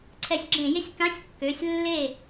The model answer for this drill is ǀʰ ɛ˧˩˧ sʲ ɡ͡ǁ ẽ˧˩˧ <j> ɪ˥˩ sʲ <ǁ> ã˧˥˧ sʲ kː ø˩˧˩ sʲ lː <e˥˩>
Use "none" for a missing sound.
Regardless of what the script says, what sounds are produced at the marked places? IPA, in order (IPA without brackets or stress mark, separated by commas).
j, k, e˥˩